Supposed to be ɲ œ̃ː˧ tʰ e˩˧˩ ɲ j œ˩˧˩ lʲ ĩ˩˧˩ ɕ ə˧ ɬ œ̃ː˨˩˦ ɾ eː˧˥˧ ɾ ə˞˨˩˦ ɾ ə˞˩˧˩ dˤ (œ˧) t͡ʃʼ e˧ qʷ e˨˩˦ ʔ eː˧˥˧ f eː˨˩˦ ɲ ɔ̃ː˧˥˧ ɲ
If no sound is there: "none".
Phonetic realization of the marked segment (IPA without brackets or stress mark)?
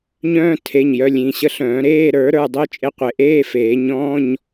œ˧